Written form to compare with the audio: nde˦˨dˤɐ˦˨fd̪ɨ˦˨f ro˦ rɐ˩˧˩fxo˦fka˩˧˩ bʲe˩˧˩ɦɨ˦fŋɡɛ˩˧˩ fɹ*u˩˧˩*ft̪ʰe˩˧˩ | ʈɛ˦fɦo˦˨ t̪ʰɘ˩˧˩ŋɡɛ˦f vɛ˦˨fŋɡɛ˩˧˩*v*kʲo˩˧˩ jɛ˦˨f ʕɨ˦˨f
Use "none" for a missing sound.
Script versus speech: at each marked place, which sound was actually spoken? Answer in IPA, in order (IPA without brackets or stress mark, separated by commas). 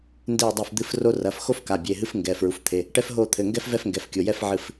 u˩˧˩, f